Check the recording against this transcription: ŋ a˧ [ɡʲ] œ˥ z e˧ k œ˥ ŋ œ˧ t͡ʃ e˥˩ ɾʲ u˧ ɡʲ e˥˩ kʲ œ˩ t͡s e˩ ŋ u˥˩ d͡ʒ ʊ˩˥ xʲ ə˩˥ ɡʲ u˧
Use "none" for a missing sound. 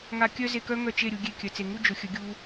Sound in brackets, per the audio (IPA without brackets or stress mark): kʲ